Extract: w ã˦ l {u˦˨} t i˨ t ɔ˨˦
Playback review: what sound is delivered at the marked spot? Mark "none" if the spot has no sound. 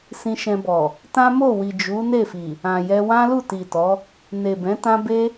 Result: u˦˨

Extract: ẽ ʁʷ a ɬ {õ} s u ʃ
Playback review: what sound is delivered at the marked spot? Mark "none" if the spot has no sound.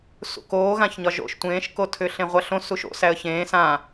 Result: õ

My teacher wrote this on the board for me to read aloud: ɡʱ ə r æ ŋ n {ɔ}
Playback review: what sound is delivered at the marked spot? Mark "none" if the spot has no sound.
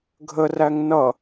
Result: ʌ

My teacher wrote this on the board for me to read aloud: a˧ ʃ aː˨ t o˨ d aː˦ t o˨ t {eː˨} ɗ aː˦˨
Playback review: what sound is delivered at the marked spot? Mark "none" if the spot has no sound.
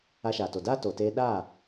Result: eː˧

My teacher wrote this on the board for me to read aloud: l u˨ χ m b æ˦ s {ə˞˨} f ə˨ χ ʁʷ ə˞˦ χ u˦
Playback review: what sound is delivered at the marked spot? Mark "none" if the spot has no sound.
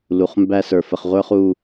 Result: ə˞˨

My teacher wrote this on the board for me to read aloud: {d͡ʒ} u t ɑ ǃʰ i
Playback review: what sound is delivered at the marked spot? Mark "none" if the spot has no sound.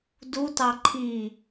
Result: d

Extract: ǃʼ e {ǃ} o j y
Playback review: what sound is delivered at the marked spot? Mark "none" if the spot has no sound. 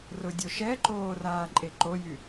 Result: ǃ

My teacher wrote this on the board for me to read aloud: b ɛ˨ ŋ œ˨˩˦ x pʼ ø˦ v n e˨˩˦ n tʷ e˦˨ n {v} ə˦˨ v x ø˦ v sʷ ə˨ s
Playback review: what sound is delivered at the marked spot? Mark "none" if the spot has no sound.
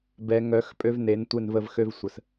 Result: v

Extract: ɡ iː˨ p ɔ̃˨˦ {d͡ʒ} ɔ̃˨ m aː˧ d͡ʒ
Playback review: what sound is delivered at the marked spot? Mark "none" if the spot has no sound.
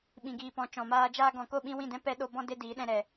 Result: t͡ʃ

